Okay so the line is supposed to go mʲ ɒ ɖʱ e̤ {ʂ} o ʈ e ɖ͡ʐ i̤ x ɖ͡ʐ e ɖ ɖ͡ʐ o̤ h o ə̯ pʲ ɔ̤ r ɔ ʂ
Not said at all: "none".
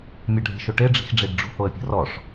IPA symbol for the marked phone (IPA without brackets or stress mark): ʃ